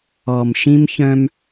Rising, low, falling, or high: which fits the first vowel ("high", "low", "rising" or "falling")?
low